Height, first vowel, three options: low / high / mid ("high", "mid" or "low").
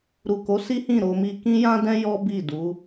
high